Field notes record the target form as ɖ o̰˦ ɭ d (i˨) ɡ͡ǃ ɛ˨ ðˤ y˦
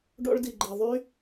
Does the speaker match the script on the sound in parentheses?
yes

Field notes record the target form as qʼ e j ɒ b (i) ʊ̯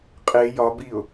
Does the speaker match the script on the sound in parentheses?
yes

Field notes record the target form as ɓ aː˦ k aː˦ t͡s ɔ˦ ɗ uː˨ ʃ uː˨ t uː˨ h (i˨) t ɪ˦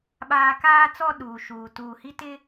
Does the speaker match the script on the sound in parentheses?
no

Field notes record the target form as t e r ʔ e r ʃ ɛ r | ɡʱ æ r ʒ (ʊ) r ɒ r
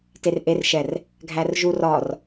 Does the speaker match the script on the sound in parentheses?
no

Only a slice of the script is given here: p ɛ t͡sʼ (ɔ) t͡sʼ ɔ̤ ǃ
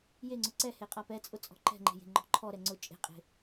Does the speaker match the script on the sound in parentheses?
no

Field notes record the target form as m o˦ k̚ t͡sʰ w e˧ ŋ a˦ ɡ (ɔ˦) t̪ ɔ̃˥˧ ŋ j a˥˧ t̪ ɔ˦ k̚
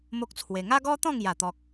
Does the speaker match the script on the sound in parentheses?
yes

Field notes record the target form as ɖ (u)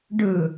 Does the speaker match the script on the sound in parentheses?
no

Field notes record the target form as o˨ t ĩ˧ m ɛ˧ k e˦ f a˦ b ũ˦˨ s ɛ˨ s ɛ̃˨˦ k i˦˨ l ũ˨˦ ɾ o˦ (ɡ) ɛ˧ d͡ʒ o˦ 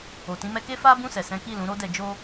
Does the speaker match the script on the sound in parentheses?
no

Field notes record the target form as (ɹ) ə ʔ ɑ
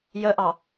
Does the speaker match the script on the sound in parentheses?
no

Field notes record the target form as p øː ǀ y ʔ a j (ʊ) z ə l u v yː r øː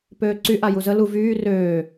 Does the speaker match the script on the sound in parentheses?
no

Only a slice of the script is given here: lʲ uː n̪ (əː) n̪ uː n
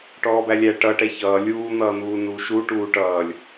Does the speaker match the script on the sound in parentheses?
no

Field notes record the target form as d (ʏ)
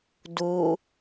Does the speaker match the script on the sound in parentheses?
no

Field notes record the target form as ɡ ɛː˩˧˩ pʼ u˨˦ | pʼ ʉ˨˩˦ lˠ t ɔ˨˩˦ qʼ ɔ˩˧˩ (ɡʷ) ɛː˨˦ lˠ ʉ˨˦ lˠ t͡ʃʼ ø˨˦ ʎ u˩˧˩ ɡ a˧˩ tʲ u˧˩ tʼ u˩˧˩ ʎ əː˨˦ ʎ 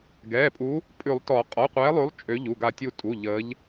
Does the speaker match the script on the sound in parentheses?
no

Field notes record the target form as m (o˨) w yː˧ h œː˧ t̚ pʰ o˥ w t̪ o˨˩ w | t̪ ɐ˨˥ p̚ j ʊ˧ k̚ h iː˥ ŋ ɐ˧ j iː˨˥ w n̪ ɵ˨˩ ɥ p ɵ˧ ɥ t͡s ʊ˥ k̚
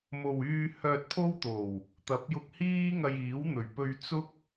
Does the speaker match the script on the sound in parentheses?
yes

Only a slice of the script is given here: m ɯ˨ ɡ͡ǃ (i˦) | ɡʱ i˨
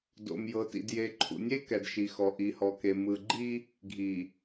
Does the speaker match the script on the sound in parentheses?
yes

